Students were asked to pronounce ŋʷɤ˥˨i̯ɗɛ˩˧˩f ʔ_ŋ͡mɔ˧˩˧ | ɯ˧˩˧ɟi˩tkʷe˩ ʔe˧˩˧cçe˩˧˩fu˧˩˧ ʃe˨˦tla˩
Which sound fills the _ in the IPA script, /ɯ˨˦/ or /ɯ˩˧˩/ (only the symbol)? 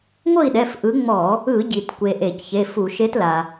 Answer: ɯ˨˦